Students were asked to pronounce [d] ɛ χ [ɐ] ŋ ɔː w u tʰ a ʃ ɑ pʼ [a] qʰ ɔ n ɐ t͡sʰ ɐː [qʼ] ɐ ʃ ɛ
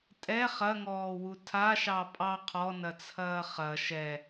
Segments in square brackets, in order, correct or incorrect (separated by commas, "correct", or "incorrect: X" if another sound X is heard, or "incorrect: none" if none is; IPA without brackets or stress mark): incorrect: tʼ, correct, incorrect: ɑ, incorrect: χ